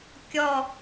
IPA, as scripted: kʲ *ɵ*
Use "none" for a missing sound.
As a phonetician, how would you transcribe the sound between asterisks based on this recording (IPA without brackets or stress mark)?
ɔ